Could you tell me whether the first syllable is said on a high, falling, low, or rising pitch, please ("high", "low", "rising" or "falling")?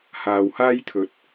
low